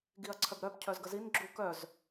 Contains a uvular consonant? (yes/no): no